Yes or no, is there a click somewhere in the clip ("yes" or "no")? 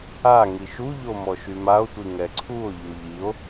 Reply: yes